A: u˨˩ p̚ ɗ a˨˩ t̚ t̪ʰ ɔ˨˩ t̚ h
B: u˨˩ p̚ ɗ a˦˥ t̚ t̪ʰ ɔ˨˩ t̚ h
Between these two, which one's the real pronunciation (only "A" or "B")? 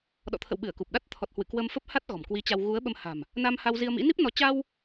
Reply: B